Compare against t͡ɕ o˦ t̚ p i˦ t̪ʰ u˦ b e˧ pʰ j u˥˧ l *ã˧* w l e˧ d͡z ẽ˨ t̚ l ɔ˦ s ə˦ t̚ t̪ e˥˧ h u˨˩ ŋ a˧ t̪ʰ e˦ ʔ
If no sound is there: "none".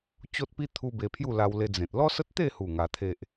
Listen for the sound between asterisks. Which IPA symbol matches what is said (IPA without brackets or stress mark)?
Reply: a˧